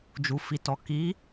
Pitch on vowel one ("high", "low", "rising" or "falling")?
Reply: low